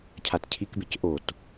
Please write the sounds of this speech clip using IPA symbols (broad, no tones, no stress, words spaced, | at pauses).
cʰatcʰikbec ʔot